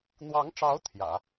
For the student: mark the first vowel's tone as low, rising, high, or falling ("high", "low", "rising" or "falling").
rising